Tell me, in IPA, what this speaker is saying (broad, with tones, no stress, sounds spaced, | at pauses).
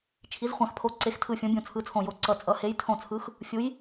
t͡ʃʰ i˨˥ z χʷ ã˧˩ x pʰ o˨˥ ǀ e˨˥ x tʰ ɯ˧˩ fʲ õ˨˥ bʲ ũ˧˩ t͡sʰ ɯ˨˥ t͡sʰ õ˧˩ j o˧˩ ǀ ʌ˧˩ t͡sʼ ʌ˨˥ h e˨˥ j tʰ õ˧˩ t͡sʰ ɯ˨˥ x | fʲ u˨˥ j